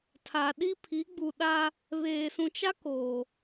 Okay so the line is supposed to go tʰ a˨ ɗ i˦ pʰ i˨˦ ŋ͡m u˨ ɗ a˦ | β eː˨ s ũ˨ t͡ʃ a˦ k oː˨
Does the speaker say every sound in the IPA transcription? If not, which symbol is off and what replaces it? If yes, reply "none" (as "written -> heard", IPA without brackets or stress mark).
ŋ͡m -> ɡ͡b